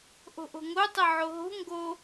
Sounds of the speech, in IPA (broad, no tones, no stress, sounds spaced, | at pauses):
ʔ o̤ ʔ o̤ ŋ o tˤ ə ʕ o ɦ o̤ ŋ ɡ o